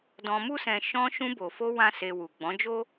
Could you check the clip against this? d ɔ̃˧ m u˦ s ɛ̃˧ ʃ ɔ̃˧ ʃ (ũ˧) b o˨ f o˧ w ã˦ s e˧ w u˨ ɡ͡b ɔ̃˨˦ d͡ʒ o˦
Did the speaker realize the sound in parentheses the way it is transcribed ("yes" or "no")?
yes